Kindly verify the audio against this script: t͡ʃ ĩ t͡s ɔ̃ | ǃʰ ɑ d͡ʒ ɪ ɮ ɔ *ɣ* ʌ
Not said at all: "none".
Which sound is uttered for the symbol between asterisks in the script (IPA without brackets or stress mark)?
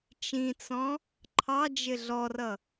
r